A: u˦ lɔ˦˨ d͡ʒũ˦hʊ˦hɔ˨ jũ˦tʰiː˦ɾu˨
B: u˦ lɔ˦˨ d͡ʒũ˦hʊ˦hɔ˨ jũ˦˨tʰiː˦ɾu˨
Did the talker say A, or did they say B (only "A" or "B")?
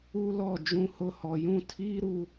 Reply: B